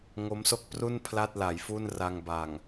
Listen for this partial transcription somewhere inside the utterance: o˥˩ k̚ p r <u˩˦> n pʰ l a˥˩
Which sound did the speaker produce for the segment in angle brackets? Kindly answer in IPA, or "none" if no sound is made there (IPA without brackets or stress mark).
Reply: u˥˩